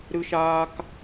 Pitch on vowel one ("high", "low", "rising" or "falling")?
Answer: high